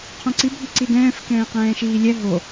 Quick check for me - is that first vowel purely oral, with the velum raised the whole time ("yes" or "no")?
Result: no